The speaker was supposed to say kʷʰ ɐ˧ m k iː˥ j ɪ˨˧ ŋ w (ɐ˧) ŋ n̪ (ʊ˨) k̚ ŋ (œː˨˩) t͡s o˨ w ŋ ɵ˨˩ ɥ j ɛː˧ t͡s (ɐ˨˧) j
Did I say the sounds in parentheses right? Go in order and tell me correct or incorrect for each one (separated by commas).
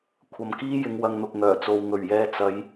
correct, correct, correct, correct